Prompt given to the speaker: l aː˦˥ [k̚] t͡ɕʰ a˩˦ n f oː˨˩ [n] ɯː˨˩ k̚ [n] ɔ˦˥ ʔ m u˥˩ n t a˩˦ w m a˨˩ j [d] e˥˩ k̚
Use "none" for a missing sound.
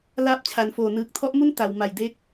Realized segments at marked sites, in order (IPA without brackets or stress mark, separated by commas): p̚, n, tʰ, d